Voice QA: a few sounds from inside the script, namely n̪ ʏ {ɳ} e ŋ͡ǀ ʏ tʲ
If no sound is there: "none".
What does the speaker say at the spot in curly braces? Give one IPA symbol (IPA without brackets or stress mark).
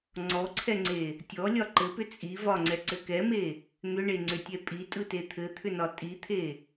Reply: ɳ